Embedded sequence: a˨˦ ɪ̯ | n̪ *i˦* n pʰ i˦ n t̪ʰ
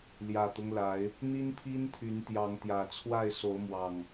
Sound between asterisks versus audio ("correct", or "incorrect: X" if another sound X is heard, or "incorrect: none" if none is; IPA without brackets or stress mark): correct